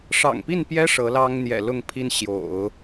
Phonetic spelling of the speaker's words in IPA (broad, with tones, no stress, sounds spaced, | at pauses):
ʂ ɑ̰˨˩ ŋ p i˥˩ n p j ɛ˥ ʂ ɤ˧˥ l ɑ˥ ŋ n̪ j ɛ̰˨˩ l ʊ˥˩ ŋ pʰ i˥ n ɕ j o̰˨˩˦ ʊ̯